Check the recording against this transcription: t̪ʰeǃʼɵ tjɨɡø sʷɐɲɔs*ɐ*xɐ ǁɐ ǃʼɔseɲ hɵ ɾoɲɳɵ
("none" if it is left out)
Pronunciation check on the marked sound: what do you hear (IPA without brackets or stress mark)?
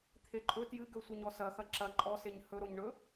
ɐ